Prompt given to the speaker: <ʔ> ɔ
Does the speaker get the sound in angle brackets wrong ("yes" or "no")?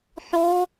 yes